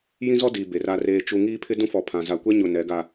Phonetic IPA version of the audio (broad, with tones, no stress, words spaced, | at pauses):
jĩ˦zɔ˦diː˨ be˨ra˦reː˦t͡ʃu˦ ŋiː˦pʰɪ˦ dũ˦fɔ˨pʰã˨ za˨kʷɛ˦ɲʊ˨ nɛ˨˦ɡa˨